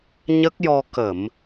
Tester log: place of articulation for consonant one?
palatal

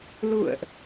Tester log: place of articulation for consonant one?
alveolar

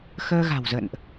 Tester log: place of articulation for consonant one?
velar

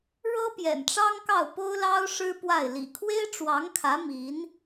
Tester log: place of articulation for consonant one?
retroflex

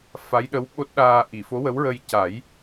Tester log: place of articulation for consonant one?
labial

